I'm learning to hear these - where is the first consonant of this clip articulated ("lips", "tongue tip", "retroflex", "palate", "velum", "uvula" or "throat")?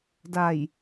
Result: tongue tip